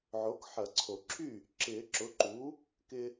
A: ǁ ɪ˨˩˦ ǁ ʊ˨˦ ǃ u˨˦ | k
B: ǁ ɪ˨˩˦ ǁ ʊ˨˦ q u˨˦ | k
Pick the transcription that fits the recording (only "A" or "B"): A